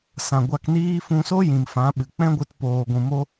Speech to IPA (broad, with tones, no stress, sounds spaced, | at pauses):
s ã˨ ɡʷ a˧ k n iː˦ f ũ˧ s o˦ j ĩ˨ m f ã˨˦ ɓ ɨ˨ k͡p ɛ̃˦ ɡʷ ɨ˧ t p oː˧ ɡʷ ũ˧ m o˦